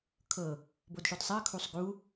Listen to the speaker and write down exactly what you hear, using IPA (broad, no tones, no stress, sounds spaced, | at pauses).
kʰ ɤ | b o d ʃ o d sˤ a ə̯ kʰ u sˤ ɡ u